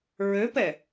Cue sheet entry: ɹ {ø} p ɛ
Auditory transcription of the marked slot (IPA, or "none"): ø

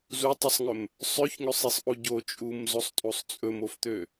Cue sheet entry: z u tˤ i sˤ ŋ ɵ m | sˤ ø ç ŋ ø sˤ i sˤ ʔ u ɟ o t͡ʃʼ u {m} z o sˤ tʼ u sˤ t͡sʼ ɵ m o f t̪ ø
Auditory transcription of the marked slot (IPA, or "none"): m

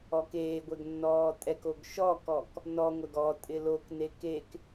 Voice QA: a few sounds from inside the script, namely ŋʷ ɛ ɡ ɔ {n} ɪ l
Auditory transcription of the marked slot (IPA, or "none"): tʼ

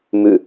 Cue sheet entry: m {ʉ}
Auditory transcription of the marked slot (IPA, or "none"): ʉ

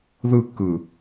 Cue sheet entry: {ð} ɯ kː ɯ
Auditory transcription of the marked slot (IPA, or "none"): ð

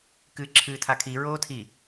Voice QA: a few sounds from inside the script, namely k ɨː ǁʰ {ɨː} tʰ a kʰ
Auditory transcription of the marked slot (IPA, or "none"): ɨː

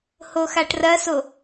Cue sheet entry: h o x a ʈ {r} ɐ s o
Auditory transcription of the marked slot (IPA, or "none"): r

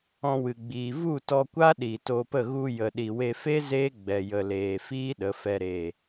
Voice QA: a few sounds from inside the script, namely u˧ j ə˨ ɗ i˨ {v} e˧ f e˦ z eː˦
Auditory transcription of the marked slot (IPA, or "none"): w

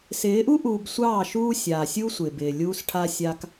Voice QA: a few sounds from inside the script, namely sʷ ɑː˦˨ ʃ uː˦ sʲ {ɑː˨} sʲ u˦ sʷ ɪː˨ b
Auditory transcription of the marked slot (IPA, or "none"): aː˨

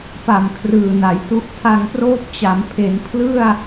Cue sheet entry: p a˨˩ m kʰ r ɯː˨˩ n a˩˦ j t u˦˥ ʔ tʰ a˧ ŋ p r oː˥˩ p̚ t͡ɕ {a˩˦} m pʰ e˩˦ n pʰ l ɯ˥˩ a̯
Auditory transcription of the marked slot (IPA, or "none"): a˩˦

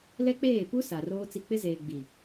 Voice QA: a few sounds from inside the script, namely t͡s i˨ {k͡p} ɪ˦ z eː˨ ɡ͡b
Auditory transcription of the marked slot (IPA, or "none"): k͡p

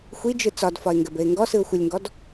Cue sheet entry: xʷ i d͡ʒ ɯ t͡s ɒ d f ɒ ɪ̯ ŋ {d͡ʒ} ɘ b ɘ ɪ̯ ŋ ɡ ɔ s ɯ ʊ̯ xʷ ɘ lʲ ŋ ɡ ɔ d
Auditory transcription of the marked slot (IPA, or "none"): ɡ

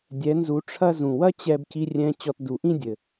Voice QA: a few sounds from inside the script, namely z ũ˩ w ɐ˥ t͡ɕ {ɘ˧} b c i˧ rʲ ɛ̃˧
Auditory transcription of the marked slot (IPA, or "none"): ɛ˧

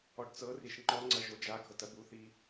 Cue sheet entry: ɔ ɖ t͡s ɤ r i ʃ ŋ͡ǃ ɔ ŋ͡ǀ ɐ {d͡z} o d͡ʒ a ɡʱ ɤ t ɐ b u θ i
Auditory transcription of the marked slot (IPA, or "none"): ʒ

